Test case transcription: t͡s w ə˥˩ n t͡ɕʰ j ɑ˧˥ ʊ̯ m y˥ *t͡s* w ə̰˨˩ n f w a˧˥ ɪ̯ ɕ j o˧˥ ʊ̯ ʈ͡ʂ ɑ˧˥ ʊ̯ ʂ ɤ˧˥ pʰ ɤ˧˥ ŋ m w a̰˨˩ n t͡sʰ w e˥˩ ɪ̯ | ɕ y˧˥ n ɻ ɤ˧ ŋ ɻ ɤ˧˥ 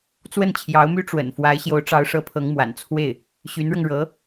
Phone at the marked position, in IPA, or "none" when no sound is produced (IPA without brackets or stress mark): ʈ͡ʂ